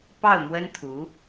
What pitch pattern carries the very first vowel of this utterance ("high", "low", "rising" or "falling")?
falling